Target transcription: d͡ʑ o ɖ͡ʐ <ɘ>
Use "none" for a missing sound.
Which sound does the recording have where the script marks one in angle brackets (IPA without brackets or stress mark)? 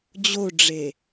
e